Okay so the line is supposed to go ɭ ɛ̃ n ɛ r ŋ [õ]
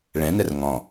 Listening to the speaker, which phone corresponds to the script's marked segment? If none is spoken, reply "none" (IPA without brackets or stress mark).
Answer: ɔ̃